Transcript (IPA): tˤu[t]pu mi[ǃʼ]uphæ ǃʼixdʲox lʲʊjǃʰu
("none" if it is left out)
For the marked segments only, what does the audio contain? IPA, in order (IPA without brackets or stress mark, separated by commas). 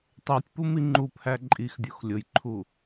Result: tʲ, ŋ͡ǃ